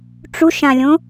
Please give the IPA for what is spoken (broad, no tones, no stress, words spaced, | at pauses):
ʈ͡ʂuʃãlʲõ